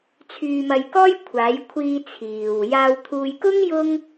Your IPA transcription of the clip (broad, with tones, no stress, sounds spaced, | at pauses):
t͡sʰ yː˧ m ɐ˧ j k ɔː˥ j kʷʰ aː˨˧ j kʷʰ iː˧ t͡sʰ iː˨ w j aː˧ w t̪ʰ uː˧ j k ʊ˥ ŋ j ʊ˥ ŋ